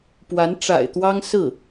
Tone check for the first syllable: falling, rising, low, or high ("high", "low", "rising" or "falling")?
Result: rising